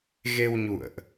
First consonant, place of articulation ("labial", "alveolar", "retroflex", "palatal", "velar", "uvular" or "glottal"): velar